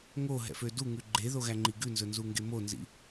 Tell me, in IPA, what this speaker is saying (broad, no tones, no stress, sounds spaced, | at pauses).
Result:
ŋ o ɦ ɛ̰ f ø d u ŋ ʉ ɡ͡ǃ e ð o ɣ æ ŋ͡ǃ i ɡ ʉ n z ɵ n z u ŋ ɡ e m o n z ḭ